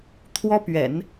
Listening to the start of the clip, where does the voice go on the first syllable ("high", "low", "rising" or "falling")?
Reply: high